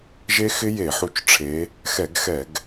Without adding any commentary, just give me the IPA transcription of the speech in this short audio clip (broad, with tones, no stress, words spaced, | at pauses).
ʒe˦˥xɪ˦˥je˧˩˧ħu˧˩t͡ʃ ʈ͡ʂʰe˨˦ | xɛ˧˩˧ɡxɛ˧˩˧ɡ